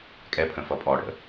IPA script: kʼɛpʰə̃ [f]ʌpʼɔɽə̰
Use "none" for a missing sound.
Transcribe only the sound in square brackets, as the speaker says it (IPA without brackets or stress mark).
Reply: f